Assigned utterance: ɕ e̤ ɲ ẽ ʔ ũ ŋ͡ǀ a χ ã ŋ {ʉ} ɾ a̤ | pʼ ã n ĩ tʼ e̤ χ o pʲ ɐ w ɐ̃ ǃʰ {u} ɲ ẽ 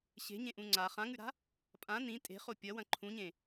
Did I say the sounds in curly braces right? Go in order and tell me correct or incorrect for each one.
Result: correct, incorrect

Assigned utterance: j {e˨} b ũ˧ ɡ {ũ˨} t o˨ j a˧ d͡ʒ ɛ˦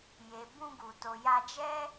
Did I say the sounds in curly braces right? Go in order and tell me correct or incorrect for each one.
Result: correct, incorrect

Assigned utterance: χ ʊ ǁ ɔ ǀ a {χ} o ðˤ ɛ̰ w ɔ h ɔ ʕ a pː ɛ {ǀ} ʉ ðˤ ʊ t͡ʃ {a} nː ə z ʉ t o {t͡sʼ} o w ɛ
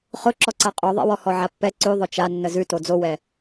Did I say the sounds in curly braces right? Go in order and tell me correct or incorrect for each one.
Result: incorrect, correct, correct, incorrect

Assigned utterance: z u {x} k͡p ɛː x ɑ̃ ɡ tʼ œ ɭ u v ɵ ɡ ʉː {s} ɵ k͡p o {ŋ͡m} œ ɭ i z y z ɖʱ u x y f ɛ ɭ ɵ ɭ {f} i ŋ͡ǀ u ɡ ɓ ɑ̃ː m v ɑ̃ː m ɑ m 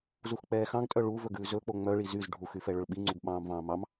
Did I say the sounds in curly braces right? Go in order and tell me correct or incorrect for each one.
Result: correct, incorrect, correct, incorrect

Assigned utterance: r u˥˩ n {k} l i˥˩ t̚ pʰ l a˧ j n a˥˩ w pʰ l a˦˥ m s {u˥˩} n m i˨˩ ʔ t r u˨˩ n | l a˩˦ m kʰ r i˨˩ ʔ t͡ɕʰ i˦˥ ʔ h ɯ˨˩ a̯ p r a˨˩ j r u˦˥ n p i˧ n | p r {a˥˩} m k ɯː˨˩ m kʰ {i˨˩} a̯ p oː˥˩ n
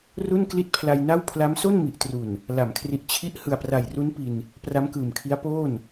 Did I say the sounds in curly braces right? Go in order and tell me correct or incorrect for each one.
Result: correct, incorrect, incorrect, incorrect

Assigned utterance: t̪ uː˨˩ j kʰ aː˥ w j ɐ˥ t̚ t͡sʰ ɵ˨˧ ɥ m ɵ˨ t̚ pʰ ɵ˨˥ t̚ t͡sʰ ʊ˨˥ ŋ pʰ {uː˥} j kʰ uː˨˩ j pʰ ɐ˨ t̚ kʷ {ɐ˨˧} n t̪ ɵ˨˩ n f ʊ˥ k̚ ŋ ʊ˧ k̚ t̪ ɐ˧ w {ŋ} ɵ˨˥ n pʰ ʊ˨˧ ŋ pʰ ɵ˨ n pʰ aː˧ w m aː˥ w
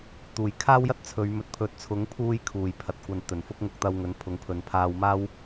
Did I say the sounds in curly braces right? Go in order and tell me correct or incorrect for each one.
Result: incorrect, correct, correct

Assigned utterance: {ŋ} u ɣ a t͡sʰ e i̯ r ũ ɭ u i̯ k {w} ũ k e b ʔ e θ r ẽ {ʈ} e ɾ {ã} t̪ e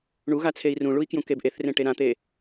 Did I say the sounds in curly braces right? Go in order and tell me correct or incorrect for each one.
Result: incorrect, incorrect, correct, correct

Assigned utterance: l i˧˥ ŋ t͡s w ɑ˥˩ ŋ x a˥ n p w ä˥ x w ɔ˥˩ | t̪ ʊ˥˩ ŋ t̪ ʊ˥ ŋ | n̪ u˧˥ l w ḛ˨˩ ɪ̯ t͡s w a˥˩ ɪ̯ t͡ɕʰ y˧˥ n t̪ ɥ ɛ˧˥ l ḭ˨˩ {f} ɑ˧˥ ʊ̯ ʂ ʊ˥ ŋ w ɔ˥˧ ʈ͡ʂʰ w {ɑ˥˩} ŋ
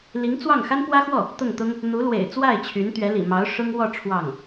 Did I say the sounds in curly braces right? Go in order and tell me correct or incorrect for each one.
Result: incorrect, correct

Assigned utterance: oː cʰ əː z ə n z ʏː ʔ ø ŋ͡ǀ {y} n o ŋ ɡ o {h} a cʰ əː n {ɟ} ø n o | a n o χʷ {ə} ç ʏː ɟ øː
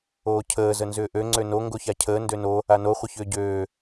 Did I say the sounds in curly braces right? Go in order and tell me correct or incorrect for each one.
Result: incorrect, incorrect, incorrect, correct

